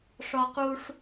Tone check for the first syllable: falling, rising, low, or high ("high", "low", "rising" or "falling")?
high